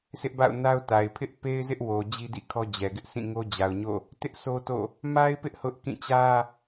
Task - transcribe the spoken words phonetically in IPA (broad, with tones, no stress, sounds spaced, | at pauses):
s ɪ˦ ʔ b a̰˦˨ ʊ̯ n a˦ ʊ̯ t a˨ ɪ̯ pʰ ɪ˦ ʔ p e˦ ɪ̯ z ɪ˦ ʔ w o˨ d͡ʑ i˦ d ḭ˦˨ kʰ ɔ˦ d͡ʑ ɛ˨ ɡ ɪ˦ ʔ sʰ ĩ˦˨ ŋ o˦ d͡ʑ a˨ ʊ̯ ɲ o̰˦˨ | t ɪ˦ ʔ s o˦ t o̰˦˨ | m a˦ ɪ̯ p ɪ˦ ʔ h ʊ˦ ʔ k ĩ˦˨ t͡ɕ ä˦